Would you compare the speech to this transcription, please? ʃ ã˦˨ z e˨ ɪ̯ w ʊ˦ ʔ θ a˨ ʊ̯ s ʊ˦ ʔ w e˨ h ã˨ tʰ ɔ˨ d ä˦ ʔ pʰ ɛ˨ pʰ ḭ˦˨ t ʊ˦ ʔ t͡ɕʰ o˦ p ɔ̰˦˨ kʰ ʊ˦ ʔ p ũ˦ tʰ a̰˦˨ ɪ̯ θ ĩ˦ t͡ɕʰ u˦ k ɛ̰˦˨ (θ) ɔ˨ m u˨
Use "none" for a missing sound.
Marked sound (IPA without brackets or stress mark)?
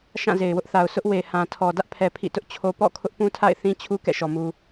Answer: ʃ